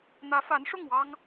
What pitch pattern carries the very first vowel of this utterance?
rising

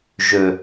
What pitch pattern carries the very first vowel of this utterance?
low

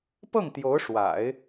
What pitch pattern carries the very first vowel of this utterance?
falling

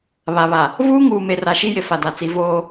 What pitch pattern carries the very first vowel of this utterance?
low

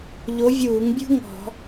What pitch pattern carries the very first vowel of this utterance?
rising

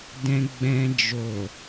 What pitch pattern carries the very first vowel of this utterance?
low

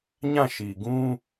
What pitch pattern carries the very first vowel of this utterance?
falling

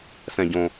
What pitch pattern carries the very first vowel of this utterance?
low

